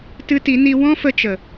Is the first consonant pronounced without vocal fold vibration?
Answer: yes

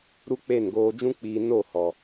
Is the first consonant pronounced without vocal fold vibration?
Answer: no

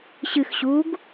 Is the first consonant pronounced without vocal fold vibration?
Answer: yes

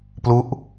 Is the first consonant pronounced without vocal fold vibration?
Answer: yes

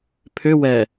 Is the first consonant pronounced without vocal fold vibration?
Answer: yes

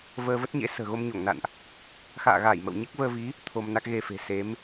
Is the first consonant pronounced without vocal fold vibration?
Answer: no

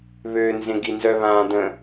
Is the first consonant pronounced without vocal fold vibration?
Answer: no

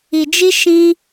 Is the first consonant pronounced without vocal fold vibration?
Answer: no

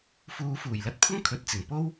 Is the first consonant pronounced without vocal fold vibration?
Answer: yes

